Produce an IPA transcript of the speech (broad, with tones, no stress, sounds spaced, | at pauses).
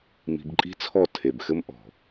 m i̤˧ b ǃʼ i̤˦ t͡sʰ ɔ˦˨ tʰ e˨ b x ɘ˦ m ʔ ɔ̤˨